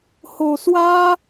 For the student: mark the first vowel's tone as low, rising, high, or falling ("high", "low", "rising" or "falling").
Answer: low